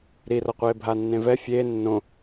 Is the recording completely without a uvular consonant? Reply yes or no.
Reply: no